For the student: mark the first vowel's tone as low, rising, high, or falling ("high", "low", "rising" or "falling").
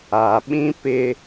low